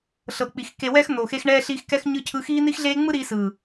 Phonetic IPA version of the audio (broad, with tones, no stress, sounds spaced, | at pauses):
ɬ ɤ˨ k͡p i˨ x k e˨ w ɛ˧ x n̪ o˨ x e˧ x ɳ ɛː˧ ɬ iː˧ x k ɛ˧ x ɲ ɯ˧ cʰ ɯ˧ x iː˦ n̪ i˦ x ɮ eː˦ ŋ͡m ɯ˦ ɾ iː˧ s ɯː˨